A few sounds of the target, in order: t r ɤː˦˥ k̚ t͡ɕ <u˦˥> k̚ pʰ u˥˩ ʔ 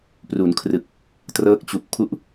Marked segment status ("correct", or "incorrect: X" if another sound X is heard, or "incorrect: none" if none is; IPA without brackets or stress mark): incorrect: u˨˩